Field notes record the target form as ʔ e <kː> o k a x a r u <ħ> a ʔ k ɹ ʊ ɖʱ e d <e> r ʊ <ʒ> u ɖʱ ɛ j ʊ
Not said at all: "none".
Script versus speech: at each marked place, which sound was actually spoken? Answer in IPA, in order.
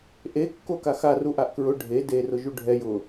kː, ʔ, e, ʒ

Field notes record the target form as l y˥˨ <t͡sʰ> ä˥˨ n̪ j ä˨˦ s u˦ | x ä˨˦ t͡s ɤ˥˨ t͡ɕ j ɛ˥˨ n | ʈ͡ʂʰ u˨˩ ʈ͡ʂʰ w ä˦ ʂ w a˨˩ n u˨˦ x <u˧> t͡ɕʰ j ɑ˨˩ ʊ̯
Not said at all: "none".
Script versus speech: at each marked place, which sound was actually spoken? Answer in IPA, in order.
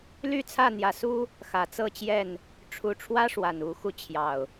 t͡sʰ, u˧

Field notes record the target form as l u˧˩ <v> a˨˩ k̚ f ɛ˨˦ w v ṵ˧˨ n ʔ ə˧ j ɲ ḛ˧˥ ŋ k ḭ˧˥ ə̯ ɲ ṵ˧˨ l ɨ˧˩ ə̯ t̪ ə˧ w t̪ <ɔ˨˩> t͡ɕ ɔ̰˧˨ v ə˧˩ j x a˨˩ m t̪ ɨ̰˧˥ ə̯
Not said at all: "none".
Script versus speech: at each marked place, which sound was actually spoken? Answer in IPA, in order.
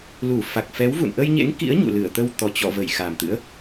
f, ɔ˨˩

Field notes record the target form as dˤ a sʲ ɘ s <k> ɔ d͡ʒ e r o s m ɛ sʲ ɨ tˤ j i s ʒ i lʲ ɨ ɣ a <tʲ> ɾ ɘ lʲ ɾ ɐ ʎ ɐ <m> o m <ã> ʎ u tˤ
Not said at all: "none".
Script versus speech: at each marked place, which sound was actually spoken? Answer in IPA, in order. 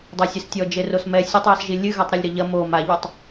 tʲ, tˤ, m, a

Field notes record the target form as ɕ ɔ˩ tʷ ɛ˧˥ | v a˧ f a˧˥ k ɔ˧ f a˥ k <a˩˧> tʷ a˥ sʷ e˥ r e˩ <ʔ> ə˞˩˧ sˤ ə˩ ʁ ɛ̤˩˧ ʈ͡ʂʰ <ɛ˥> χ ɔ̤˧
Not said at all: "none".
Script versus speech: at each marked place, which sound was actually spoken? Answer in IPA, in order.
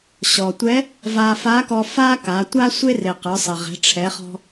a˩˧, q, ɛ˩˧

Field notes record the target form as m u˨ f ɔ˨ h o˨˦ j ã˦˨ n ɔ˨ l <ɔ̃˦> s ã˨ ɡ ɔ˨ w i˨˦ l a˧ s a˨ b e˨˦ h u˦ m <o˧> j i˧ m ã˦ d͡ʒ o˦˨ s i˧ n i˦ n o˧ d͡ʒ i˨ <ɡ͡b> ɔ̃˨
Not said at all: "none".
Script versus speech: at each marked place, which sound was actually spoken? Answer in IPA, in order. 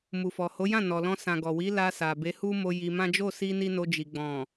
ɔ̃˧, o˧, ɡ͡b

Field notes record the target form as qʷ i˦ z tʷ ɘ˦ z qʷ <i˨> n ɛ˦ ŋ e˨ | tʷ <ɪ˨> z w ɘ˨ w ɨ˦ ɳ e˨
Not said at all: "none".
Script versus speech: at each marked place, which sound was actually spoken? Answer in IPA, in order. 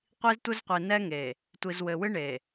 i˨, i˨

